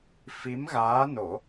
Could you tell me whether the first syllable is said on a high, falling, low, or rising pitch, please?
rising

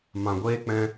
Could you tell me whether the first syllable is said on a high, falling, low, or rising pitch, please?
low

